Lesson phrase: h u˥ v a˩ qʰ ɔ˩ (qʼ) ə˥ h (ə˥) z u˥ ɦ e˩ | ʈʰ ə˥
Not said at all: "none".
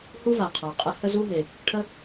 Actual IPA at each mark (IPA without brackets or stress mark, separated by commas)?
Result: qʼ, ə˥